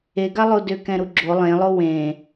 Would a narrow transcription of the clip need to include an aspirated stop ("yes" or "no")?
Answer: no